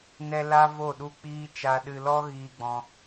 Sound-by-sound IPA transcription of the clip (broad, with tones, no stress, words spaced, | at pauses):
nɛ˦la˦ vo˦˨ɗu˦˨k͡piː˦ t͡ʃa˧ɗɨ˧lɔ˦ ɣiː˧ɡ͡bɔ̃˧